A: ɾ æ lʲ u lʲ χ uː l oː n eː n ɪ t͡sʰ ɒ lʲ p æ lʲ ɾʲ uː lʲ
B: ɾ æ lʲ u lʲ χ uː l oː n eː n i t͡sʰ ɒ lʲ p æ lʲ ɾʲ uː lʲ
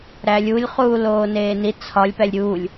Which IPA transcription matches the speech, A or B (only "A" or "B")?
B